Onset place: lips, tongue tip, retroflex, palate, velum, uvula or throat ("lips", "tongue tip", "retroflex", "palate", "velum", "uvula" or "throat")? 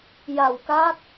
palate